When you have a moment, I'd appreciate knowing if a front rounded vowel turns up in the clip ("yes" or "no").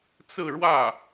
no